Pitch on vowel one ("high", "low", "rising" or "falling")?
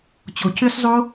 low